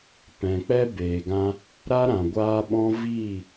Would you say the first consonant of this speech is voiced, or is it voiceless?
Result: voiceless